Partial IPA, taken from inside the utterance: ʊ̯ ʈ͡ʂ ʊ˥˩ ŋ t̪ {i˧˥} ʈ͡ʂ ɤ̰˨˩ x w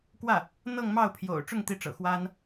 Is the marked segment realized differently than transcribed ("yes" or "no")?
no